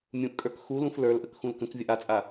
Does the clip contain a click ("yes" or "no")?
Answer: no